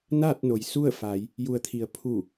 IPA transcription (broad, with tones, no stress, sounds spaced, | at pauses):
n aː˥˨ t̚ n o˩ j s u˥˨ ə̯ f a˩˧ j | j u˩ ə̯ t̪ʰ i˩ ə̯ pʰ u˧˩